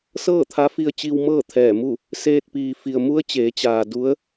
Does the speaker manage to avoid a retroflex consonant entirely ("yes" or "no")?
yes